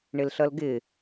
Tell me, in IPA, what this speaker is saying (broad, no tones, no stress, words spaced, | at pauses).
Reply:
ɳɪlɬʌlɡɪ